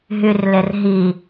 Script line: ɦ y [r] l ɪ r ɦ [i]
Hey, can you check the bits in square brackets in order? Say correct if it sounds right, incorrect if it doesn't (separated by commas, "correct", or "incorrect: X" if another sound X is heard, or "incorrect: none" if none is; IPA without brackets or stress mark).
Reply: correct, correct